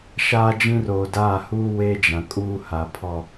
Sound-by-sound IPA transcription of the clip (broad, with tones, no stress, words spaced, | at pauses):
ʃaː˦d͡ʒĩ˦ roː˨daː˦˨huː˦ we˦d͡ʒã˨kʼuː˦ha˨ pʰɔ˨